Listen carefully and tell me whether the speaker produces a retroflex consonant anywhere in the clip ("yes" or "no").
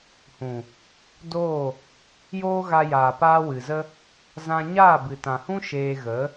no